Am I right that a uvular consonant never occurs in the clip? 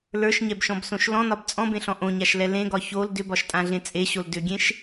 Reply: yes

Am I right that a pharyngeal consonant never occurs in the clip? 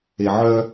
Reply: no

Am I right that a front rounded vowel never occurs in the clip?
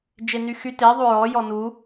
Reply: no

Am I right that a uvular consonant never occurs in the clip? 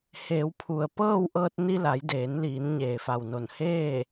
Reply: yes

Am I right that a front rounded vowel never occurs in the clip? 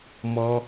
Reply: yes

